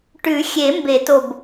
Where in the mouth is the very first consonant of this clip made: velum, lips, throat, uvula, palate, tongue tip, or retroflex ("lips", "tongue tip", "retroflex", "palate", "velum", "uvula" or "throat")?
retroflex